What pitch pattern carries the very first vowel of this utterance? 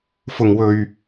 low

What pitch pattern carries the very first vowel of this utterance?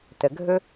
low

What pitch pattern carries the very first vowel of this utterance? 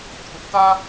high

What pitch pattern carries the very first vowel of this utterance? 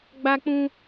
high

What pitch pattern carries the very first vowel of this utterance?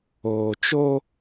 low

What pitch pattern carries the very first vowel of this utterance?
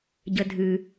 low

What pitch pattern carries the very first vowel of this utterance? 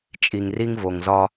low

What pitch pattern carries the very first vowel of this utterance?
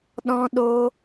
high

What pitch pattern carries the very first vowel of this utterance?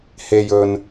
low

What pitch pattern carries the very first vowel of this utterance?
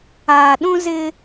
low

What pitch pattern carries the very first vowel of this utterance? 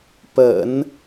low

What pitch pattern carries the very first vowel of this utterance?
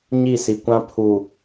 falling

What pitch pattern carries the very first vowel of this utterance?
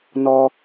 high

